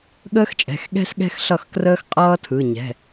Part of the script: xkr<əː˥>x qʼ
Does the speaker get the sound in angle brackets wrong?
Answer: no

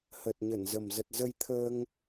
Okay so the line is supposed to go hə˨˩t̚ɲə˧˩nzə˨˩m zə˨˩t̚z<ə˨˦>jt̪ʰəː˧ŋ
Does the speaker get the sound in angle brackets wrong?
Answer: yes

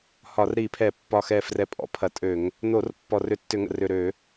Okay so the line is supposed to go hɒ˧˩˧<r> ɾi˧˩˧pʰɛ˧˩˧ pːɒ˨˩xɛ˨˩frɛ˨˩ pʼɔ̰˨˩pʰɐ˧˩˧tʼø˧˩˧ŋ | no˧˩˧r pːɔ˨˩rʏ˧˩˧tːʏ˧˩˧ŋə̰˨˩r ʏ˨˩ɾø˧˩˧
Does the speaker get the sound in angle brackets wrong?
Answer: no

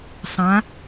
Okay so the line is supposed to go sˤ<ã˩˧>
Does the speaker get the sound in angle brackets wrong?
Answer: no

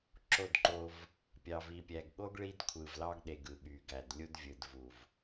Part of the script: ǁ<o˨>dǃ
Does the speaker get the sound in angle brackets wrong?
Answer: yes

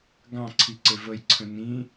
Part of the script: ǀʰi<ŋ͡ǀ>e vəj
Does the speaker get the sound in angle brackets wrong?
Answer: yes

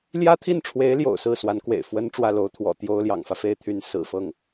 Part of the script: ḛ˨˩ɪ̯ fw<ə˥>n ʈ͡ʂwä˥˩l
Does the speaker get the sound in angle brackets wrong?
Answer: no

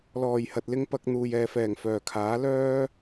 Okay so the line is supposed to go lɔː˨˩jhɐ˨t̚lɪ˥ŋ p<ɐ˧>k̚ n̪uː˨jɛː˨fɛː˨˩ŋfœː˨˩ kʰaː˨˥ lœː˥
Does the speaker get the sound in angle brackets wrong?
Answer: no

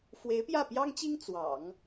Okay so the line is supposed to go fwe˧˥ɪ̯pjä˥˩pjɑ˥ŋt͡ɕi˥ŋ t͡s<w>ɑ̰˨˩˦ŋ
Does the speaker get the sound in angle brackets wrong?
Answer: no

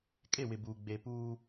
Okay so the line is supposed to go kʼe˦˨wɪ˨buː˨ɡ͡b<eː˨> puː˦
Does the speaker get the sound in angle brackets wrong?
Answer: no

